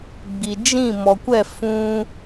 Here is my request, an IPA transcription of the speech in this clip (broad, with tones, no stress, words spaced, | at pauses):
ɡ͡bi˨ d͡ʒĩ˦˨mɔ˨kʷɛ˦˨ fũ˦